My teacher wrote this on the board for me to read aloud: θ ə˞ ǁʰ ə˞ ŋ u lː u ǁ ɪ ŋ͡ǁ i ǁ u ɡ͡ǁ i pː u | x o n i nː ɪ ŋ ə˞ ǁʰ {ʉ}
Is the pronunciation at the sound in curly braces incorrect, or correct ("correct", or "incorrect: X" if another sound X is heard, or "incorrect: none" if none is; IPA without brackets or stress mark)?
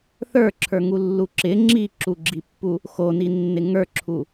incorrect: u